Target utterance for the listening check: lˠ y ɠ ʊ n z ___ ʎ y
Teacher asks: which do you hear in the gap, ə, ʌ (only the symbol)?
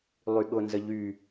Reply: ə